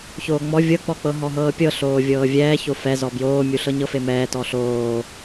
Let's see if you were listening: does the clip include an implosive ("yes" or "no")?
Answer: no